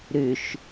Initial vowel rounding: rounded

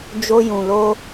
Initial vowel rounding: rounded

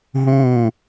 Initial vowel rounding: rounded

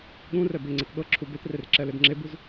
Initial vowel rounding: rounded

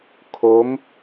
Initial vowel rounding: rounded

